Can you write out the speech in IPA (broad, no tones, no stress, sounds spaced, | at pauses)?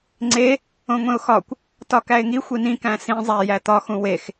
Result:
ŋ͡ǀ e | õ ŋʷ ẽ ʊ̯ x ɒ kʷ | t ɒ k æ ɪ̯ ŋ i xʷ i n ĩ k æ̃ s ĩ zˤ æ j æ t̪ ɒ x ũ w e x